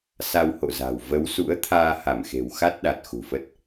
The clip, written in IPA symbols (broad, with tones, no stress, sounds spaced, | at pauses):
s a˧ w h o̰˧˨ z a̤˨˩ w v ə˨˦ w s ṵ˧˥ ə̯ t̪ʰ aː˧ h a˧˩ m x e̤˨˩ w x a˦˥ t̚ ɗ a˨˩ t̚ x ṳ˨˩ f ə˦˥ t̚